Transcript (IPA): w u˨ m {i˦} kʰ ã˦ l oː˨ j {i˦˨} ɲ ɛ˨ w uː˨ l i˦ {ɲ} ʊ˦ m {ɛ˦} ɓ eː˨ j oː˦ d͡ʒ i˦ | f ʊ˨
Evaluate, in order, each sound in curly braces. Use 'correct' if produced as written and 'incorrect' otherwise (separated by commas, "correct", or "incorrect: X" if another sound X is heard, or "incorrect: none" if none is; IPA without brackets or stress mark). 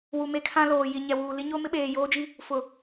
incorrect: e˦, incorrect: i˨, correct, incorrect: ɪ˦